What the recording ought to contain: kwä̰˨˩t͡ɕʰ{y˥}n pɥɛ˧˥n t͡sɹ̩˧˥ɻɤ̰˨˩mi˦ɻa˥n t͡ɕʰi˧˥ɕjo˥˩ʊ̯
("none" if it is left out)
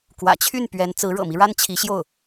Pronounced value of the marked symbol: y˥˩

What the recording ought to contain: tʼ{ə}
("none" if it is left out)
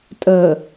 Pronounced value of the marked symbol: ə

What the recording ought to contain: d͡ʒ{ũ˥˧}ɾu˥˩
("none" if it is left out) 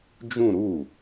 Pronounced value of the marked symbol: ũ˥˧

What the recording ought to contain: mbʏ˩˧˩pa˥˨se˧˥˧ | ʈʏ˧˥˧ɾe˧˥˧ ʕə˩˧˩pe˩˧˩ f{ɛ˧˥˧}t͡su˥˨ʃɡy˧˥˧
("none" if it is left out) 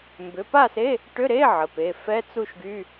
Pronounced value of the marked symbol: ɛ˧˥˧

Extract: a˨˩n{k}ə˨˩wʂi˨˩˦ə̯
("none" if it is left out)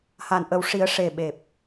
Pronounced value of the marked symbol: ʔ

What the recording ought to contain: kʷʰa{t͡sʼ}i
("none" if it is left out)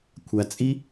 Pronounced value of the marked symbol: t͡sʼ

